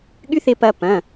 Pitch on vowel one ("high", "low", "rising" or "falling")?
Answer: high